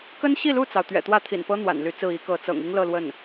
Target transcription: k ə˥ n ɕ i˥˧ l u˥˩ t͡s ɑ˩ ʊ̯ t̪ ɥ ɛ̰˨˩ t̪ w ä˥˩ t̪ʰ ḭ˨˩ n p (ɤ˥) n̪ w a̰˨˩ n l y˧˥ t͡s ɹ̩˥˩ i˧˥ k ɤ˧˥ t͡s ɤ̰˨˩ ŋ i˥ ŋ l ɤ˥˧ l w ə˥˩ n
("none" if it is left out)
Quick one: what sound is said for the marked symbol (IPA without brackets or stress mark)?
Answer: ɤ˥